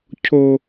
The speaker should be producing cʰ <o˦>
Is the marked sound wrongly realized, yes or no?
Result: no